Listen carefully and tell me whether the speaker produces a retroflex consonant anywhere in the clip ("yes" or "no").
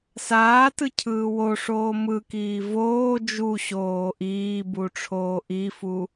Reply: yes